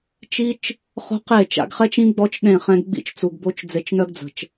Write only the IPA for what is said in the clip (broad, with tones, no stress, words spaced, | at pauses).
t͡ʃi˦t͡ʃ | χo̤˦qe˦˨ t͡ʃa̰˧ɡχɛ˦t͡ʃĩ˦ ɡ͡bɔ˦t͡ʃɗẽ˦˨χɛ̃˧ɡ ɡ͡bḭ˦t͡ʃt͡su˨ɡbo˦t͡ʃ d͡ze˧t͡ʃnœ˦ɡd͡zə̤˨t͡ʃ